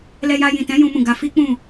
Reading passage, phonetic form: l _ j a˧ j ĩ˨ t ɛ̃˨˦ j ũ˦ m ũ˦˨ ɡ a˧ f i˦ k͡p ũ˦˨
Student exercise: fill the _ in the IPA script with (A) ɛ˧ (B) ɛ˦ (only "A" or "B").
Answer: A